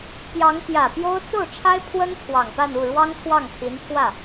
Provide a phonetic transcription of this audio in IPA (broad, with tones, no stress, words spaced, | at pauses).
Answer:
pjɑ˧˥ŋt̪jä˨˩pjo˥ʊ̯ t͡so˥˩ʊ̯ʈ͡ʂʰa˥ɪ̯ pʰwə˥n pʰwɑ˨˩ŋpa˥˧n u˥˩ɻwɑ˥ŋt̪ʰwɑ˥˩ŋ t̪ʰi˧˥npʰwä˥˩